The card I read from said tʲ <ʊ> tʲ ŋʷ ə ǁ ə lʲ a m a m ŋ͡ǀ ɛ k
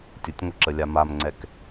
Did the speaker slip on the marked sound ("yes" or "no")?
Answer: no